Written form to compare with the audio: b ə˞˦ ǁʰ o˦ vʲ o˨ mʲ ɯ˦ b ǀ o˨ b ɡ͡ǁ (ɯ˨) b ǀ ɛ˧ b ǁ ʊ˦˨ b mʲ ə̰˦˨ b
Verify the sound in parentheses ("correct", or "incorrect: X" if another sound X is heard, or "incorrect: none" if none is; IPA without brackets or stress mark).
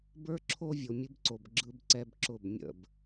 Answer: incorrect: ɯ˧